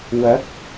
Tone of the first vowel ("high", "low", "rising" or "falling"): rising